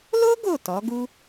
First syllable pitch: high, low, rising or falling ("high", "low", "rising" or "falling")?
high